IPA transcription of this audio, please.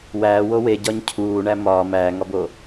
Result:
w æː w o w e ɟ ɒ ɲ cʰ uː ɳ æ m ɒː m æː ŋ ɒ b o

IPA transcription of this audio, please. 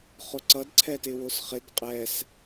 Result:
χ ʊ ǀ ʌ d ǀʰ ɛ t ɪ w ʊ s χ ɪ d qʼ ɛ s

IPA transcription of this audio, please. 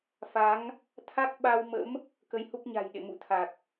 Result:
f a˨˦ ŋ | t̪ʰ a˦˥ k̚ ɓ a˧ w m ə̰˧˥ m | k ə˨˦ j h u˦˥ k̚ ɲ a̤˨˩ j ɗ ḛ˧˨ m ṵ˧˨ t̪ʰ a˨˩ k̚

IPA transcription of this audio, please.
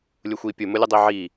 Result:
lʲ ʊ xʷ i pʲ ʊ m ʊ lʲ ʊ dˤ i ʕ i

